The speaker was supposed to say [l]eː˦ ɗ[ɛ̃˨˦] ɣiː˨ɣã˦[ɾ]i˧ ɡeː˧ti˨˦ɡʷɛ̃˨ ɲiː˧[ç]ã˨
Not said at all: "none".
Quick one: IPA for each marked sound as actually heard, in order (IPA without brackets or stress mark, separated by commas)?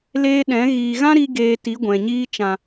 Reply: l, ɛ̃˨˦, ɾ, t͡ʃ